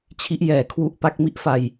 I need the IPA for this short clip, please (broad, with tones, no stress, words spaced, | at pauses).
t͡ɕʰi˦˥ʔ jɛː˩˦kʰwu˦˥ʔpa˦˥k̚ mi˥˩ʔfa˧j